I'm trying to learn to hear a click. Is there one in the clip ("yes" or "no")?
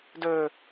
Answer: no